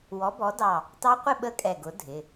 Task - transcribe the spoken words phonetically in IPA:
w ɔ˨˥ b ɔ˨˥ d ɑ˧˩ | t ɑ˦˥ qʷ ɪ˥˧ ɓ ə˥˧ kʼ ɛ˧˩ ɡ ʊ˨˥ dʱ ɪ˩˧˩

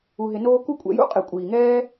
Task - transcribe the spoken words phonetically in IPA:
u˧ ɦ ɪ˧ n oː˦ k u˦ kʷʼ ɛ̰˧ j ṵ˦ qʼ e˨ kʷʼ iː˨ ŋ ɛː˦

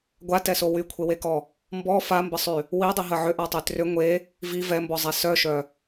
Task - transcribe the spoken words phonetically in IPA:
ɡʷ a t ɛ s o w y kʷʰ e w e k ɔ | m b ɔ f a m b ə sˤ y | w i dˤ i ɦ ə ʕ ʏ ʔ a tˤ y t r ʏ ŋʷ e | v i v ɛ m b ɔ zˤ ɛ s œ ʃ œ

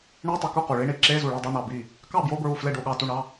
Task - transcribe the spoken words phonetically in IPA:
ɳ i˧˥˧ tˤ o˧˩ k u˥˩ q u˩ ɭ i˧˥˧ ɳ i˧˩ ǁ e˧˥˧ z u˧˩ ɭ i˥˩ dˤ o˧˥˧ n ɑ˧˩ b i˥˩ | k ɑ˥˩ b j o˧˥˧ b ɹ u˧˩ f l e˥˩ ɖ o˥˩ ɠ ɑ˥˩ t u˥˩ ɳ ɑ˧˥˧

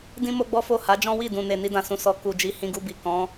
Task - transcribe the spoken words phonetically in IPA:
d ĩ˦ m o˦ ɡ͡b ɔ˦ f o˦˨ h a˨˦ d͡ʒ ɔ̃˦ w i˦˨ d ũ˨ n e˨ n i˧ d ã˨ s ũ˨ s ɔ˨ k u˨ d͡ʒ i˨˦ h ĩ˧ ɡ u˧ b i˨ k ɔ̃˨˦

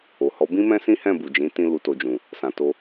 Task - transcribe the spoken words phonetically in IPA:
o˨ h ɔ˨˦ b ĩ˦ m ɛ̃˦ s ĩ˦ h ɛ̃˦˨ b u˨ d͡ʒ ĩ˨˦ t ĩ˧ l u˨ t o˨ d͡ʒ ũ˨ | s ã˨ t o˧

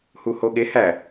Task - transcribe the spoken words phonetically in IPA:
h u h o ɠ e h æ

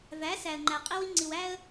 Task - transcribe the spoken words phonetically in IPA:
v æ˨˦ s æ˨ ə̯ ŋ͡ǃ æ˨ qʼ i˦ w i˦ ŋ͡ǀ i˨ w æ˦ ə̯

